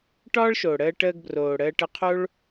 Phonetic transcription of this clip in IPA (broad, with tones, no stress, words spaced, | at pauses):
ʈɒː˦ɭʃo˨ɽəː˧ ʈəː˧ɡbroː˨ɽəː˧ʈə˧ qʰo˦ɭ